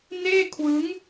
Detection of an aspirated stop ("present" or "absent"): present